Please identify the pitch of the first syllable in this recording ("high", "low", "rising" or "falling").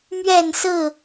falling